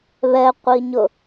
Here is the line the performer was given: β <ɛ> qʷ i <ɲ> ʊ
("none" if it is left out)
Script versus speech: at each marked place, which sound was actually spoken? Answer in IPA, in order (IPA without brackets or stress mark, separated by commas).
ɛ, ɲ